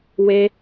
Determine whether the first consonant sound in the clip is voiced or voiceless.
voiced